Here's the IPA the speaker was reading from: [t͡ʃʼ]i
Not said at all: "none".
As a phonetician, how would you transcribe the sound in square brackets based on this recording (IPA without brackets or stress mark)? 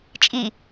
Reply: t͡ʃʼ